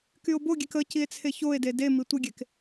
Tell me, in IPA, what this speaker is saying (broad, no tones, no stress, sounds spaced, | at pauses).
k y o̯ b o ɡʲ e k ə c i e̯ t͡sʰ e ç o e̯ d e d e m i tʷ ə ɡʲ e k